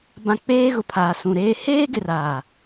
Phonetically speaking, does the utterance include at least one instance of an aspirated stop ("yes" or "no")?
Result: yes